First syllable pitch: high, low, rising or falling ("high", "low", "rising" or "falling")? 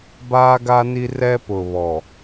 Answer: high